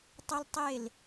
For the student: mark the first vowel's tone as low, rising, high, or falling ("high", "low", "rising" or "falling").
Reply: high